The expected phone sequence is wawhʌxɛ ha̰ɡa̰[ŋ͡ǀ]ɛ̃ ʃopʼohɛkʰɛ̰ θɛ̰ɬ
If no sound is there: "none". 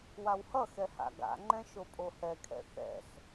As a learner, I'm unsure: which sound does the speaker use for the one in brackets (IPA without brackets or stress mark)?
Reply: ŋ͡ǃ